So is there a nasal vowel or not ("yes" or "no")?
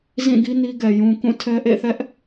yes